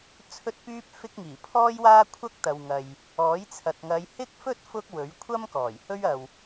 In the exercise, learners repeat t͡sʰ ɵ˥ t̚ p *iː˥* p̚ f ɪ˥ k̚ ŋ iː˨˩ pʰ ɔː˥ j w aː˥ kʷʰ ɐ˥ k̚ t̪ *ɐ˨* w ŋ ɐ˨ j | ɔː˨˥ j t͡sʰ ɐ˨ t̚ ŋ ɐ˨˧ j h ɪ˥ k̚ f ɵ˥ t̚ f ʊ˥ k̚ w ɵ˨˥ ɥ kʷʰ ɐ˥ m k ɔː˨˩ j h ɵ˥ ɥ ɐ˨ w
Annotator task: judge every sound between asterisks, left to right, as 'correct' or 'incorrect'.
incorrect: yː˥, correct

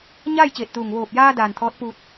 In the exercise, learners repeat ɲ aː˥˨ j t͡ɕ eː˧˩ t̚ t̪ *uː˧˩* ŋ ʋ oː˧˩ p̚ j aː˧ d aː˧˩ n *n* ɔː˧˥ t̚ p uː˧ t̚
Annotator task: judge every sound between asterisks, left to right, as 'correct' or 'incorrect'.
correct, incorrect: t̪ʰ

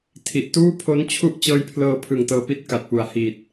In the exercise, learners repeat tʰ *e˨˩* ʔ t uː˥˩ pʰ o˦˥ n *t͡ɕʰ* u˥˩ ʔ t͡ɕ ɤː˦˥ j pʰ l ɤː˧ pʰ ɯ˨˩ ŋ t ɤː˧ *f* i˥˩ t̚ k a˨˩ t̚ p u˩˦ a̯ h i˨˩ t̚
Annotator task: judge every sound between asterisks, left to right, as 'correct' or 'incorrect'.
incorrect: i˨˩, correct, incorrect: p

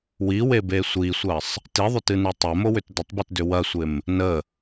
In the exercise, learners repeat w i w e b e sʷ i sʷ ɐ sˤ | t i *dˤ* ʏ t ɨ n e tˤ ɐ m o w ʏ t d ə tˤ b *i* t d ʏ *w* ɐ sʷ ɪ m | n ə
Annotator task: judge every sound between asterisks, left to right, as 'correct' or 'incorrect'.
incorrect: ðˤ, incorrect: ɨ, correct

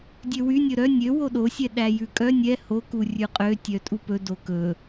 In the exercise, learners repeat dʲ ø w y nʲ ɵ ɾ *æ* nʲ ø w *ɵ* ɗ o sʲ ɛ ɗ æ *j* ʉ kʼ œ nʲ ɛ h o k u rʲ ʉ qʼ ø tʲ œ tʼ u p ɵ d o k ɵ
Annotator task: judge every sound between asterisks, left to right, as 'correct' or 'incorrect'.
incorrect: œ, incorrect: o, correct

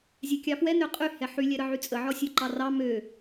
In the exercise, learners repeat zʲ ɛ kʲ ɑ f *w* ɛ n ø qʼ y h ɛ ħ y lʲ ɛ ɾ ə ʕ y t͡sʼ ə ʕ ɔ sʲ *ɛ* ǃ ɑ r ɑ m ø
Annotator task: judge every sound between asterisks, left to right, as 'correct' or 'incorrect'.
correct, incorrect: ø

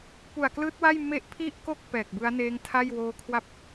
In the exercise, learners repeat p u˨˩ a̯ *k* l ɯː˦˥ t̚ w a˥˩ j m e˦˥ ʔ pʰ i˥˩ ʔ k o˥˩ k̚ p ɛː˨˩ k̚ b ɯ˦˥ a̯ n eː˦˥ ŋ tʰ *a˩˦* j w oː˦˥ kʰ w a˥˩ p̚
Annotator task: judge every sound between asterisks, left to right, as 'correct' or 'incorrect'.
correct, incorrect: a˥˩

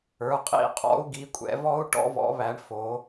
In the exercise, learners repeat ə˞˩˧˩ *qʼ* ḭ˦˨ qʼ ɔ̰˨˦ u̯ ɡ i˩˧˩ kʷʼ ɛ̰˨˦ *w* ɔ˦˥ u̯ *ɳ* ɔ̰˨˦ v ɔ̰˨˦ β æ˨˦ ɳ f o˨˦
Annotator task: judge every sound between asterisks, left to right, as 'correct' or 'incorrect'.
correct, incorrect: v, incorrect: ʈ

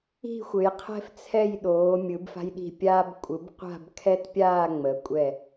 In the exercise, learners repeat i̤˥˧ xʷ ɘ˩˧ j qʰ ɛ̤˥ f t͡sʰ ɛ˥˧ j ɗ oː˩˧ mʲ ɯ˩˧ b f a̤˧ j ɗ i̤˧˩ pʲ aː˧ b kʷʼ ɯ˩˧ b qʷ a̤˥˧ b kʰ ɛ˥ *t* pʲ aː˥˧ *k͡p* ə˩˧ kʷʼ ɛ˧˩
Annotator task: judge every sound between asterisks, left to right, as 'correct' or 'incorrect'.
correct, incorrect: ŋ͡m

